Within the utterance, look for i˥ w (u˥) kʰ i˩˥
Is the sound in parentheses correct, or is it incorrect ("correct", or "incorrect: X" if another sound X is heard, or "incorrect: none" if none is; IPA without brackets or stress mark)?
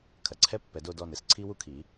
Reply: correct